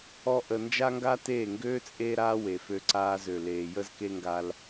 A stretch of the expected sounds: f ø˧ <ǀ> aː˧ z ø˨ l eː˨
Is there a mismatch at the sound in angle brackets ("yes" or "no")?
no